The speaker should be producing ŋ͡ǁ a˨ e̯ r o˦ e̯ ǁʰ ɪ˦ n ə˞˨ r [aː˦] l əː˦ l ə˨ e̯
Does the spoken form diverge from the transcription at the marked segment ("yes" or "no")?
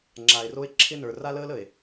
yes